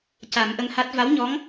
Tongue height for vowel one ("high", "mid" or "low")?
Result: low